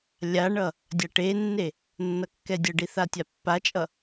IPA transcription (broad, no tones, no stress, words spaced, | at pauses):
lʲaɳʌ | dʲaʈenːe | nːʌkːɛdʲʌɖi θatʲapːat͡ʃʼʌ